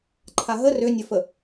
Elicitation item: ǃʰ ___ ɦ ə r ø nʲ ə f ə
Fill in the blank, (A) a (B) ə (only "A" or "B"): A